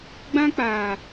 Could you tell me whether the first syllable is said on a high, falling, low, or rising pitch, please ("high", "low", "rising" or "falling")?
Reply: high